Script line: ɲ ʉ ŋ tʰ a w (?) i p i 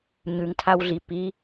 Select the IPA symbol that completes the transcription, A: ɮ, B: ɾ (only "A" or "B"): A